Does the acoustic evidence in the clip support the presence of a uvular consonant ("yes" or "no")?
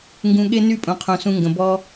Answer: yes